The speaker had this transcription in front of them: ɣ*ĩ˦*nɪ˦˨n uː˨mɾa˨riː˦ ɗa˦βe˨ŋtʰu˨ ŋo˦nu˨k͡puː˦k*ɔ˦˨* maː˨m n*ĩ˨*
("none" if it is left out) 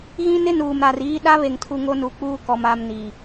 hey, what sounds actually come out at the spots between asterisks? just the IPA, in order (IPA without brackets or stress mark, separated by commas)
ĩ˦, ɔ˨, i˨